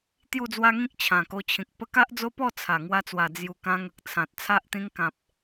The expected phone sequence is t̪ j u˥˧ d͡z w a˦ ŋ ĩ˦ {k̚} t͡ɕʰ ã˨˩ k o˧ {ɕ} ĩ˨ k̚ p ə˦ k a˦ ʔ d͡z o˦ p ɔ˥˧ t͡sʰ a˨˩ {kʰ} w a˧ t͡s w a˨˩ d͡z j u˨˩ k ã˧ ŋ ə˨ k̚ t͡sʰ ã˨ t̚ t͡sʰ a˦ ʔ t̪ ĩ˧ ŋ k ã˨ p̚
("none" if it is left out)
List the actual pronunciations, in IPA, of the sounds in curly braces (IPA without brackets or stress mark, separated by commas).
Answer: k̚, t͡ɕʰ, ŋ